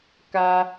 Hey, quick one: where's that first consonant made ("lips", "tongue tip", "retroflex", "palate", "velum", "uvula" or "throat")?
velum